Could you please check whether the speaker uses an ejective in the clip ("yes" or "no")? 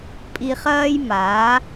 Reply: yes